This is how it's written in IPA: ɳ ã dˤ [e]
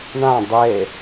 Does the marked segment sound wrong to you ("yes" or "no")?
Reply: no